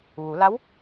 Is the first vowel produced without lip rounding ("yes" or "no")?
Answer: no